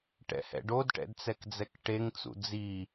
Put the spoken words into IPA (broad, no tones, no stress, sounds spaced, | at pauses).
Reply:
ʈ ɛ̰ h ɛ̰ ɖ o d ʈ ɛ̰ d t͡s ɛ k d͡z ɛ k ʈ e ŋ t͡s ṵ d͡z i